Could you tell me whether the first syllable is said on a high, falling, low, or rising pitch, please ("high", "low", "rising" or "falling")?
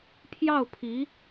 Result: falling